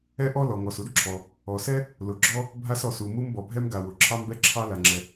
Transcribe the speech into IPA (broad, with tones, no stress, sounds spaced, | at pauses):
ɛ˥ ʔ ɔ˥ l ɔ˩ ŋ ɔ˩ s u˥ d ǁʰ ɔ˩ | ɔ˩ s ɛ˥ | l ʊ˩ ɡ͡ǁ ɔ˥ | bʱ a˥ s ɔ˩ s u˩ m u˥ m b ɔ˩ bʱ ɛ˥ m ɡ a˩ w ʊ˩ ǁʰ ɑ˥ m b ɛ˥ ǁʰ ɑ˥ l a˩ ŋ͡ǁ ɛ˩